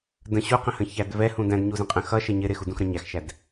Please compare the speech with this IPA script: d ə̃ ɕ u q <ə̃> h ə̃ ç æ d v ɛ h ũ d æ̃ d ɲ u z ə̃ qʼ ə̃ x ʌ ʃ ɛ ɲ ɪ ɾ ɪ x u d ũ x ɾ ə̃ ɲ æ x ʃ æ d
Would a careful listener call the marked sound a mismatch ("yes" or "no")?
no